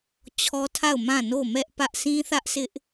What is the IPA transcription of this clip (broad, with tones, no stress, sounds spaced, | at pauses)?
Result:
t͡ɕʰ ɔ˦ tʰ a˦˨ ʊ̯ m ã˦˨ n o˦˨ m ɛ˦ ʔ p ä˦ ʔ sʰ ĩ˦ θ ä˦ ʔ sʰ ɪ˦ ʔ